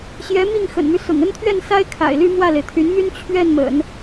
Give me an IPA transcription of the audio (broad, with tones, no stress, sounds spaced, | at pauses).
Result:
ɕ j ɛ˧˥ m i˥˩ ŋ x ə̰˨˩ n m y˦ s ʊ̰˨˩ ŋ ə˥ n t̪ʰ ɥ ɛ˥˩ n s a˥ ɪ̯ kʰ a̰˨˩ ɪ̯ l y˥˧ m w ä˥˩ l e˩ ɪ̯ t̪ʰ y˧˥ n m y˥ n t͡ɕʰ ɥ ɛ˥˩ n m ə̰˨˩˦ n